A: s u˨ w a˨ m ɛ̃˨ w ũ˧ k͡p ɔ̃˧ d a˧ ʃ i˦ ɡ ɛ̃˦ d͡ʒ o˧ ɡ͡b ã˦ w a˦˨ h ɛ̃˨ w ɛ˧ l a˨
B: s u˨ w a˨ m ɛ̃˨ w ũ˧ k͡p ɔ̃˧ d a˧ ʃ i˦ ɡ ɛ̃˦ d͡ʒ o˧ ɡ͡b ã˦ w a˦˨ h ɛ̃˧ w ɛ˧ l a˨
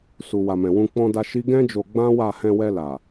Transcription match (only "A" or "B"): B